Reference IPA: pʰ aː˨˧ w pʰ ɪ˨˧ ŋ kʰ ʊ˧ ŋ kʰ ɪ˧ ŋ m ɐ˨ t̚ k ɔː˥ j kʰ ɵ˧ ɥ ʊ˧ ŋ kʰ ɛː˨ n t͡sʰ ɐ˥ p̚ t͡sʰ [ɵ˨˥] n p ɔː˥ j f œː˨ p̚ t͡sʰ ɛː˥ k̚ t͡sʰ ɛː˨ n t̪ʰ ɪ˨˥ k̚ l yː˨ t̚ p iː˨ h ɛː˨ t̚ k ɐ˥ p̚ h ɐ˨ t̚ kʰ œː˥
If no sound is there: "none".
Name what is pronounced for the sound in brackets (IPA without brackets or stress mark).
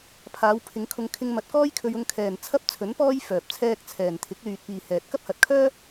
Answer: ɵ˨˥